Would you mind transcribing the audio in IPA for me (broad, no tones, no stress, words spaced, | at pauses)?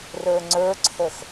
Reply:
rə˞ŋ͡ǀə˞ǀʰəx